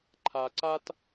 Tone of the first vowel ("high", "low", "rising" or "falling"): low